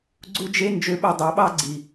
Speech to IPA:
ɡ͡ǀ u˧ d͡ʒ e˧ n d͡ʒ ø˧ ɓ ɛ˧ dˤ æ˨˦ ɓ ɑ˦ ɡ͡ǀ i˨

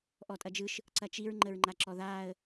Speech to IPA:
ʔ ɔ tʼ ɐ d͡ʒ ɯ ʃ | ǀ ɐ t͡ʃ i ɹ ŋ͡ǃ ə ɹ ŋ͡ǃ a ǁ ɔ ð aː ə̯

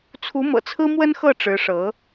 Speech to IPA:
t͡sʰ u˧˥ m ɤ̰˨˩ t͡sʰ ɹ̩˥ m w ə˥ n x ɤ˥˩ ʈ͡ʂ ɻ̩˧˥ ʂ ɤ˧˥

